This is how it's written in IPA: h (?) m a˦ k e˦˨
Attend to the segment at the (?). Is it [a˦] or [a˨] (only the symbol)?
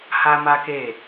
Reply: a˦